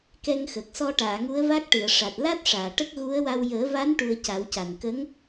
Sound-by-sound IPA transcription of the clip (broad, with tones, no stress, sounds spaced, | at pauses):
k ɛ˧ ŋ x ə˨˩ k̚ s ɔ˧ ʈ aː˨˩˨ ŋ u˧˥ ə̯ v a˦˥ k̚ ʈ ɨ˨˩˨ ə̯ ʂ a˨˩ t̚ l a˦˥ t̚ ʂ aː˨˩˨ ʈ ə˦˥ k̚ ɣ u˧˥ ə̯ w a˧ w j əː˨˩˦ v a˧˥ n ʈ u˧ ə̯ c a˨˩˦ w c a˨˩ n k ə˧˥ ŋ